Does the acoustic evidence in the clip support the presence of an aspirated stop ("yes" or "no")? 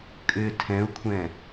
yes